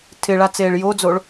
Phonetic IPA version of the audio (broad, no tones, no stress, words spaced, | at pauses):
tʰɪɭat͡seːɭ jod͡zoɭ